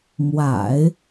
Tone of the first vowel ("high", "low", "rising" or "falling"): low